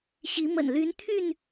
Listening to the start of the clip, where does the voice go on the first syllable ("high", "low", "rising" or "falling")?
rising